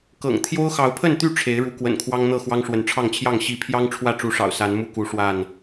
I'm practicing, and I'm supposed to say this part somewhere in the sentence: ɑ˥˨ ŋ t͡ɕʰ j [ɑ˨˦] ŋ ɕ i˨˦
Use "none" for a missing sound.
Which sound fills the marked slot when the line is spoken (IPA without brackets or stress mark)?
ɑ˥˨